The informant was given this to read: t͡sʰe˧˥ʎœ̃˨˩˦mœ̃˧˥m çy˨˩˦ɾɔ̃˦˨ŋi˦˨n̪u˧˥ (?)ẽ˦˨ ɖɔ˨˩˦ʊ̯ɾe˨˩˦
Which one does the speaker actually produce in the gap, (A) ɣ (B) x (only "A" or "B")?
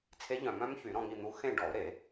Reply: B